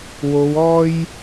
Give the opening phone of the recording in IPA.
w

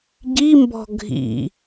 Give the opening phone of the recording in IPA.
ɟ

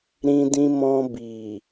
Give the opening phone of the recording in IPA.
ɾ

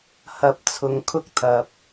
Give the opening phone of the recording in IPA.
h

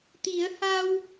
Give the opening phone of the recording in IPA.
t̪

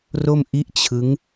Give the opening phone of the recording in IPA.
r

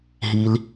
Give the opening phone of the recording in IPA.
ɦ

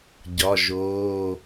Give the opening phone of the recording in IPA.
ɟ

